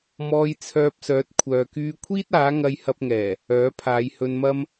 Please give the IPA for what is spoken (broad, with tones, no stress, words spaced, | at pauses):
mɔː˧jt͡sʰœː˧p̚ sœː˨˥t̚ kʷʰœː˨kyː˧kʷʰiː˥t̚ aː˨˥ŋɐ˧jhɐ˧p̚ŋɛː˨˩ | œː˨˥pʰaː˨˧jhɵ˧nmɐ˥m